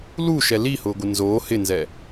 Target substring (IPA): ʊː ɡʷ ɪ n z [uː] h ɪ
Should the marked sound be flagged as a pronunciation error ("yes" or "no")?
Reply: yes